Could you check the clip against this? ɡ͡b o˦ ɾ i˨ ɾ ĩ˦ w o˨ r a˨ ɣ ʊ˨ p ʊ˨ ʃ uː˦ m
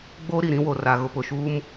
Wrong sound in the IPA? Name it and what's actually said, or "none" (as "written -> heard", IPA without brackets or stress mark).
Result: none